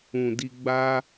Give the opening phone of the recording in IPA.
ũ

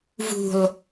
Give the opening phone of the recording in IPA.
v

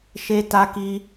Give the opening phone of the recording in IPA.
ʃ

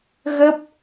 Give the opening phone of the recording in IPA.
ɣ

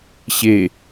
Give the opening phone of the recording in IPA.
ɕ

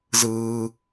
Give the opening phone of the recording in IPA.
z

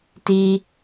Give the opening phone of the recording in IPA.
t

